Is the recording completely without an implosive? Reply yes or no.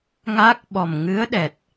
no